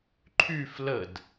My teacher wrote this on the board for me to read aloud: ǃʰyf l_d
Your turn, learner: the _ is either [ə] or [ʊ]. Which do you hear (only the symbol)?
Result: ə